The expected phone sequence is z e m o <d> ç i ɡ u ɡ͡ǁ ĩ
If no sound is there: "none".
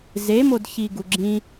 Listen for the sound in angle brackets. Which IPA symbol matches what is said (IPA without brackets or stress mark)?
d